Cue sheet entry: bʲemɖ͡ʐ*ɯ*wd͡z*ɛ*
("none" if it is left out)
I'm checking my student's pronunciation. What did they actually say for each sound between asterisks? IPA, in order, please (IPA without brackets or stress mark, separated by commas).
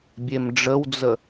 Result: ə, ə